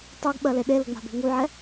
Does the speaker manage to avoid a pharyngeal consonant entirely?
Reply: no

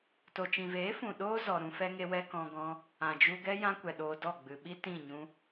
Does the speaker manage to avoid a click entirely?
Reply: yes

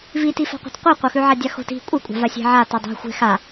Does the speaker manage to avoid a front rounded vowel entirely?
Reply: yes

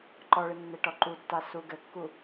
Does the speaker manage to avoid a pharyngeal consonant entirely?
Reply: yes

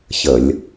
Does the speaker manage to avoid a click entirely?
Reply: yes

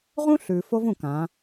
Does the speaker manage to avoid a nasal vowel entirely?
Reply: no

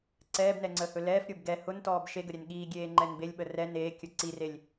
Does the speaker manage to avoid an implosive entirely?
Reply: no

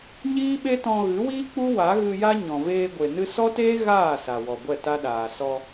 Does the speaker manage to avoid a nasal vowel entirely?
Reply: no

